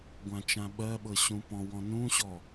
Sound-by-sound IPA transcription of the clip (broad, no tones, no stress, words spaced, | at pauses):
ɡʷãt͡ʃãɓɜɓɤ ɕũpɔ̃wɔ̃ nũɕɔ